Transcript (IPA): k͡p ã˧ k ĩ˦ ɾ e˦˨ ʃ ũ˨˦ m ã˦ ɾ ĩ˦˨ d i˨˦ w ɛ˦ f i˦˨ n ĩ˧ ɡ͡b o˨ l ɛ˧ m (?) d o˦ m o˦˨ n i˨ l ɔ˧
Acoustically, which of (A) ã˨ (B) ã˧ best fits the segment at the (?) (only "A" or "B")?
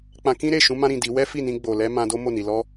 B